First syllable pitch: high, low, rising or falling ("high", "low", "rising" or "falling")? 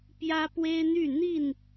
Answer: high